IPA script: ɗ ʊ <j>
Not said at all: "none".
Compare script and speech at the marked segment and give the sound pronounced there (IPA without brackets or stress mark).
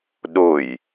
j